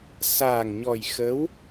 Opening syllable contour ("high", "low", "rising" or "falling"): low